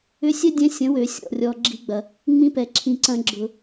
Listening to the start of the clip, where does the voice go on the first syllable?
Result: rising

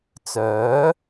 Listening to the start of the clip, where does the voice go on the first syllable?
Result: rising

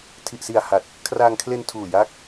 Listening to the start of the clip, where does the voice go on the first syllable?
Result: low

